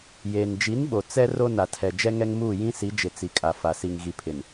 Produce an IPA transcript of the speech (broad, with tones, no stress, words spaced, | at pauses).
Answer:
jeː˨n d͡ʒi˨˦nɓo˨ t͡sɛ˦ ro˦na˨tʰɛ˨ d͡ʒɛ˦ŋɛ˦ŋmuː˦˨ jĩ˦si˨˦d͡ʒɪ˨ t͡si˨kʼa˨fa˨si˨ŋ ɣi˨pʰɪ˨n